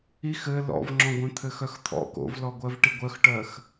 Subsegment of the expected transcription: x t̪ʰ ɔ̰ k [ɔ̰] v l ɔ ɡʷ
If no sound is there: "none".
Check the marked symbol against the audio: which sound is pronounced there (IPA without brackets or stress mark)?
o̰